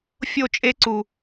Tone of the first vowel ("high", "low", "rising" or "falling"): falling